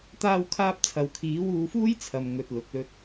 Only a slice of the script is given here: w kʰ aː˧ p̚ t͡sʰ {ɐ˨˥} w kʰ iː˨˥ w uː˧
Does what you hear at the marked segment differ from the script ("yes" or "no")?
yes